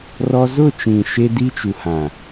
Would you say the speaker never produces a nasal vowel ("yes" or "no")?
no